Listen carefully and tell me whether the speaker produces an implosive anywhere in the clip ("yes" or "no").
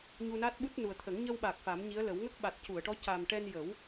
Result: yes